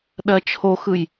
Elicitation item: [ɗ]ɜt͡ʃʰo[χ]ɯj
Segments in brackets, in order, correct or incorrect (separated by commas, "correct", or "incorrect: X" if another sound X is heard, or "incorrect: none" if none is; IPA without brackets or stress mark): correct, incorrect: x